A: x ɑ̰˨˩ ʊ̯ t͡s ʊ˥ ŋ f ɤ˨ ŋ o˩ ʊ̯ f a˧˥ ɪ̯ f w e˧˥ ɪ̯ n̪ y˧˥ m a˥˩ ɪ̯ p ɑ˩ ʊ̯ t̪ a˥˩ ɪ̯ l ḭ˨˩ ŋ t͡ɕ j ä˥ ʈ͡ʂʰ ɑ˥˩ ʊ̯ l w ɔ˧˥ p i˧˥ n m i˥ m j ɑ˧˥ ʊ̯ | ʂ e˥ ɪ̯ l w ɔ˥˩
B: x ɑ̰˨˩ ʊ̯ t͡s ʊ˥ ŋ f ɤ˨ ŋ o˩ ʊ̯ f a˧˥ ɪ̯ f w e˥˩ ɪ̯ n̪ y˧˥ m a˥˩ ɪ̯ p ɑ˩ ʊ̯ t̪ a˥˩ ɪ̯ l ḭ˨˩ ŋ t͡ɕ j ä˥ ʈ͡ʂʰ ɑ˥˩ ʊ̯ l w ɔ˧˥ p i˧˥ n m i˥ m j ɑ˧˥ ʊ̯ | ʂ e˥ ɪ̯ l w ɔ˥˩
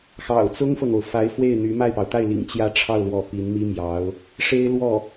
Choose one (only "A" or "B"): B